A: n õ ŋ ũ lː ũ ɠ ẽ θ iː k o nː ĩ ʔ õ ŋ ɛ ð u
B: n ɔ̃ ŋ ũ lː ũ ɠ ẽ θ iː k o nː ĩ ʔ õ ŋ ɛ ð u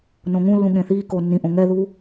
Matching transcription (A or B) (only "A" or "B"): A